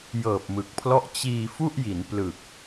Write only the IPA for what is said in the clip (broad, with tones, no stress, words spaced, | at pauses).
jɤː˨˩p̚mɯ˨˩k̚pʰlɔ˦˥ʔ t͡ɕiː˧ fu˥˩ʔji˩˦n plɯ˨˩k̚